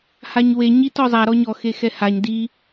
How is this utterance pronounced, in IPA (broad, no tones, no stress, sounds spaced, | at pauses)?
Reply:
h a ɲ w e ɲ i t ɔ zˤ a ɾ ɔ ɲ ɔ x e x ɛ h a ɲ d i